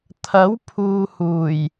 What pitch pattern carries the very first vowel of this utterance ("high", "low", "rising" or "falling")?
rising